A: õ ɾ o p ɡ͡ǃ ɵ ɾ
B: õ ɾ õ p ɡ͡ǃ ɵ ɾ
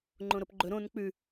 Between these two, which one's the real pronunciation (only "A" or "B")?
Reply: A